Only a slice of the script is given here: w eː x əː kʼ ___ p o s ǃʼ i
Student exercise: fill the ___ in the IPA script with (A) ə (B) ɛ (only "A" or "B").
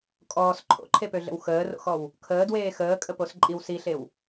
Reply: A